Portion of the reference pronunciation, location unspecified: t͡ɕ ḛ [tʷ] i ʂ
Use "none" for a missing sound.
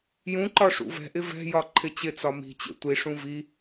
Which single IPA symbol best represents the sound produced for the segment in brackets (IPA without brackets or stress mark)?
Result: tʷ